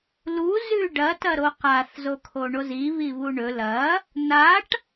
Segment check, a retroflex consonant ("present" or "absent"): present